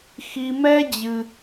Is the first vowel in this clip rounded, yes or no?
no